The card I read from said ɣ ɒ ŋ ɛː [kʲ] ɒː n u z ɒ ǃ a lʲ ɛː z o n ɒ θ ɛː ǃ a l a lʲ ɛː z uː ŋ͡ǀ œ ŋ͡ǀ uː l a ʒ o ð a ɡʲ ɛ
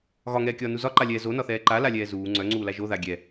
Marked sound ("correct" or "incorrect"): correct